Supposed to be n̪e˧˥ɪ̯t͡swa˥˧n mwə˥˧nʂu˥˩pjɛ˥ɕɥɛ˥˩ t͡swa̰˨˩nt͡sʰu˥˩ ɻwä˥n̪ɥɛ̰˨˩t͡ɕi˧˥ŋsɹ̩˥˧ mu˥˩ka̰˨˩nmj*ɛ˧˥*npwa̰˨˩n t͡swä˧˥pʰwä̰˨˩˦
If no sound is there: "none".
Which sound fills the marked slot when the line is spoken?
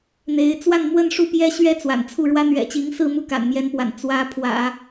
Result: ɛ˧˥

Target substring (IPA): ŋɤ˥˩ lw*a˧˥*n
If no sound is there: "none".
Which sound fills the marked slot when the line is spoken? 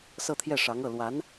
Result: a˧˥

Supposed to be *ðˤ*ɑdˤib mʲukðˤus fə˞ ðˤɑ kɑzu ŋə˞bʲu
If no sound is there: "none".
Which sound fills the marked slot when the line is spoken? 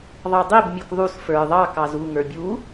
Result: ðˤ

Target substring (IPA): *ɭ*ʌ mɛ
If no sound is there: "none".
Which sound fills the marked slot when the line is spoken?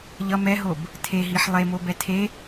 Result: ʎ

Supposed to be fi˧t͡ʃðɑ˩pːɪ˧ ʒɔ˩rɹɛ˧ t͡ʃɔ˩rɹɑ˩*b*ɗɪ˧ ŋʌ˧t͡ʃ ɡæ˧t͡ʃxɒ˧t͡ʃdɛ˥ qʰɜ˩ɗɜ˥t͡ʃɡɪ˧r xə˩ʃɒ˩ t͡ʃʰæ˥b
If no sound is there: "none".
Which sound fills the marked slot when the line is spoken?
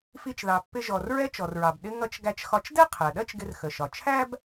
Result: b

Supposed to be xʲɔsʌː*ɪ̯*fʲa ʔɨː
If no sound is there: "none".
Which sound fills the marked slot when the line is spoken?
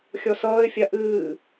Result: ɪ̯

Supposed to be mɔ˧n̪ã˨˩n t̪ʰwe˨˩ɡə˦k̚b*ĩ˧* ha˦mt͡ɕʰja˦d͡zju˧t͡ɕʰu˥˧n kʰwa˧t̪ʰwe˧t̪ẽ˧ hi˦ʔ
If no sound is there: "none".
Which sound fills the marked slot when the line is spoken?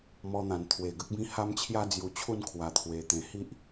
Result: ĩ˦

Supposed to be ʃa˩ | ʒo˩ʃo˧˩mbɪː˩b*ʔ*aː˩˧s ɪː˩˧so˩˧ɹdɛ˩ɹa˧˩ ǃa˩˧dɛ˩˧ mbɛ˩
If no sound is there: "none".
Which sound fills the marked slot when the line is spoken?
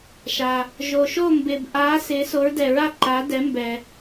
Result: ʔ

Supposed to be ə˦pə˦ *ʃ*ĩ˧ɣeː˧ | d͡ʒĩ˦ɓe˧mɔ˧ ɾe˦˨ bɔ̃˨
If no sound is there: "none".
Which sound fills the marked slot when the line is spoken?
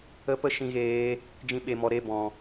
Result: ʃ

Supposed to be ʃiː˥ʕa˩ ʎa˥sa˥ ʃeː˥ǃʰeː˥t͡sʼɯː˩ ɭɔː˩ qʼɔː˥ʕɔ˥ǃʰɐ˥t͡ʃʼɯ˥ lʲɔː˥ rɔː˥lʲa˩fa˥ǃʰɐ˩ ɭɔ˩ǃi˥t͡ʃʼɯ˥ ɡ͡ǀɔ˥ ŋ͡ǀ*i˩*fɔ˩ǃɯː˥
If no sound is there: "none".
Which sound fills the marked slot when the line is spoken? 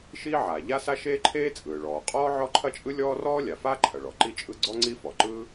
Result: i˥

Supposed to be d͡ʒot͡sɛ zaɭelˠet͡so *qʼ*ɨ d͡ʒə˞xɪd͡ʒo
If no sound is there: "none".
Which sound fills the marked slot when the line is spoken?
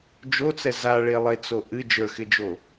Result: ʔ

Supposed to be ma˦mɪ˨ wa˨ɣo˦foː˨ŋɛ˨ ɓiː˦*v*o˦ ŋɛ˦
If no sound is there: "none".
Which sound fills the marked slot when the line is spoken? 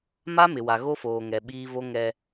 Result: v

